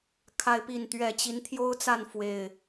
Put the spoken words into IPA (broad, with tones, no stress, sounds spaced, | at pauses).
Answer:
kʰ a˦ ɪ̯ p i˥˨ n t̪ ɥ ɛ˥˨ t͡ɕ i˨˦ n t̪ʰ j o˦ ʊ̯ t͡s a˥˨ n f w e˥˨ ɪ̯